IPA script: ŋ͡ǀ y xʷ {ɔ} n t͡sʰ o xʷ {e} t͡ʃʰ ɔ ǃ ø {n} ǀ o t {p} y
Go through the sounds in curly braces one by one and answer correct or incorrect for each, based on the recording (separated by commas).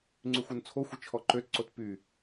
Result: incorrect, incorrect, incorrect, correct